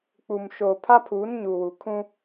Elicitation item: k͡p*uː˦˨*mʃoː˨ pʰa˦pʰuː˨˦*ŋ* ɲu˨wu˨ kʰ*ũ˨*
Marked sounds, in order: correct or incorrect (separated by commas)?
incorrect, incorrect, incorrect